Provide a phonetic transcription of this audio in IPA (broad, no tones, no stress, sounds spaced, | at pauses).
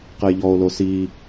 q ɘ j ʎ ɔ o̯ l o s i